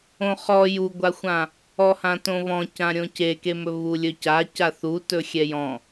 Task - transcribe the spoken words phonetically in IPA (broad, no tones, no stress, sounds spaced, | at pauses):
õ χ ɔ j u ɡʷ a xʷ ã | ɔ h ã t õ β ɔ̃ c ã ɾʲ õ c e k e m ɵ β u lʲ ɵ c a c a θ u t ɵ xʲ ɛ j ɔ̃